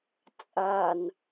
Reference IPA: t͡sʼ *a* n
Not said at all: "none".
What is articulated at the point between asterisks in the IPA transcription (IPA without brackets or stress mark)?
a